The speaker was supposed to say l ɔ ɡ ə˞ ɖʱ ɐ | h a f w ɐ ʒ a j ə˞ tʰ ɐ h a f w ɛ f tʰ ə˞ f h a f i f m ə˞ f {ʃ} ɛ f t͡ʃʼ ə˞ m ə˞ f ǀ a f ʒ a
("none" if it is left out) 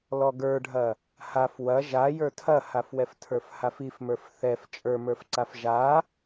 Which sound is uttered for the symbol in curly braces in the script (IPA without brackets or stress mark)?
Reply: θ